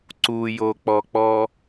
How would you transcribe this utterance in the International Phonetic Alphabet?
ǀujok͡pɔk͡pɔ

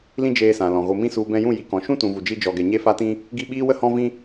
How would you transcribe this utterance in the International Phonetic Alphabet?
lĩ˦d͡ʒeː˧sã˨lɔ̃˨ ɣo˨mĩ˧ su˨ bɛ̃˧jũ˦˨ji˨ kɔ̃˨ʃũ˦ tũ˨vu˨d͡ʒi˧ d͡ʒɔ˧ɡɛ˧ ɲe˧fa˧tĩ˧ | ɡi˦˨ɓiː˦wə˦ hɔ̃˦vĩ˦

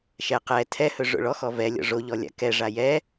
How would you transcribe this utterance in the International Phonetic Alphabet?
ʃɛ qɛ tʰɛhɵ ʐo̰ɭɔxɔ vɛ lʲɔ̰ʐoʎɔ lʲa̰kɛ ʐajɛ

